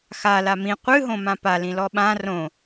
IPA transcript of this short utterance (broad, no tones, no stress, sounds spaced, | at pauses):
x a l a m ĩ qʷ ɨ ɦ õ m ã p a l ĩ l ɔ ɓ ã r õ